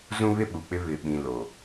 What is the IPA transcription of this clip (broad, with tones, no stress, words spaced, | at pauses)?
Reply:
zũ˦βɪ˦ɓu˨k͡pɪ˦ βɪ˨ɓĩ˨ lo˨